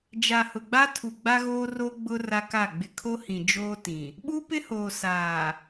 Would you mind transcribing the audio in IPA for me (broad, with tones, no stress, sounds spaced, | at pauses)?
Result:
d͡ʒ a˨ h ʊ˨ ɡ͡b a˦ tʰ u˨ ɡ͡b a˦ ɣ oː˦ r o˦ ɡ͡b ʊ˦ r a˦ k a˦˨ ɡ͡b ɪ˨ kʰ o˦ h ĩ˨ d͡ʒ oː˦ t ĩ˨ | ɓ u˦ p ɪ˦ h oː˨ s aː˨